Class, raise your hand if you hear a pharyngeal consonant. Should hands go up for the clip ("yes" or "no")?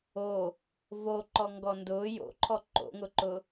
no